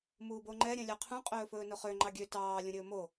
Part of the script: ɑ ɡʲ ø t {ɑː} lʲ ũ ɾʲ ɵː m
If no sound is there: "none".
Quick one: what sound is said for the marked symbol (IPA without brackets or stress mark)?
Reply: ɑː